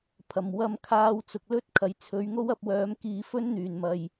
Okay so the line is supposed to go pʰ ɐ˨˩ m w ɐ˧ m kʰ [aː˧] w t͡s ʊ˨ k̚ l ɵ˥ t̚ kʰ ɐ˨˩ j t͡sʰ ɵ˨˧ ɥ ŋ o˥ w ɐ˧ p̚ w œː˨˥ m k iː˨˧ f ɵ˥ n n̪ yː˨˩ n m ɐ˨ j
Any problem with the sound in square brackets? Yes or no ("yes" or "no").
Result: no